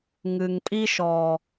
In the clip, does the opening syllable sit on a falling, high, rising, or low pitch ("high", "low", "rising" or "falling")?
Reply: low